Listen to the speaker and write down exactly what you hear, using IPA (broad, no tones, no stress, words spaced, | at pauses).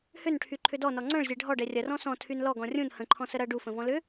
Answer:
hʏnʈʰyǃʰʏ dɔnɔ ŋ͡ǀɐ̃ɭzʲɛ ɖʱɔɖɛ rʲɐrɔ̃ sɔ̃tʰyn lɔɡɔ̃ rʲũn hə̃ǃʰɔ̃sə ɾɐ ɖufə̃vɔ̃ lʏ